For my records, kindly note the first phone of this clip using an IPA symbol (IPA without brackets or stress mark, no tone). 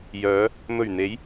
j